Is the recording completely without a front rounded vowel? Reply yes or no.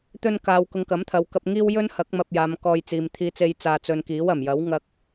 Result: yes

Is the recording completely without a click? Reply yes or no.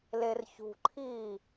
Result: no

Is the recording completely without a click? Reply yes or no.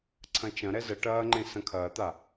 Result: no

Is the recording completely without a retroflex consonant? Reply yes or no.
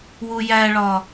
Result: no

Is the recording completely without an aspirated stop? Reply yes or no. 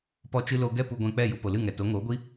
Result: yes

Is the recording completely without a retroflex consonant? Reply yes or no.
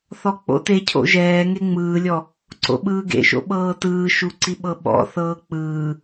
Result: yes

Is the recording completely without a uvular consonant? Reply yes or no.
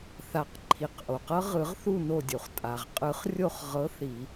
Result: no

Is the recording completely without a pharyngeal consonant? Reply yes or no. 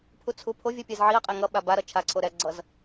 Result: no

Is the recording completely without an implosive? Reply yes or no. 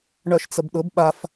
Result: no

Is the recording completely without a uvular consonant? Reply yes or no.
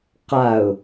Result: no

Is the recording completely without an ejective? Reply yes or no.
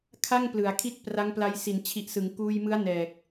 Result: yes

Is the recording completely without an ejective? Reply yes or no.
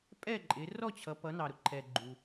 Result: no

